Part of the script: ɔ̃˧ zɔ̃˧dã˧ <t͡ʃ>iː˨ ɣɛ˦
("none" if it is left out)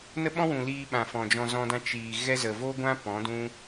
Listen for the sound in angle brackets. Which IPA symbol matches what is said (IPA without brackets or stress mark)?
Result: t͡ʃ